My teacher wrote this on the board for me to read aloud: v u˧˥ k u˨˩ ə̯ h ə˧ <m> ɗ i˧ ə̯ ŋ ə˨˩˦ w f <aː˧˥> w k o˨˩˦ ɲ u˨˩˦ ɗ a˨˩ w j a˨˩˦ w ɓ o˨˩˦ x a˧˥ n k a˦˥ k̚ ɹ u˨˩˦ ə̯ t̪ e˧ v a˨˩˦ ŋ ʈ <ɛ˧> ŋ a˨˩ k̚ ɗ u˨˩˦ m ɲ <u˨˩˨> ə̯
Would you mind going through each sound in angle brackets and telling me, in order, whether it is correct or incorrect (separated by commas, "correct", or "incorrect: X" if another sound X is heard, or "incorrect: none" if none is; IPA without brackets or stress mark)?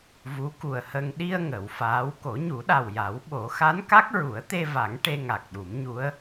incorrect: ŋ, correct, incorrect: e˧, incorrect: u˧˥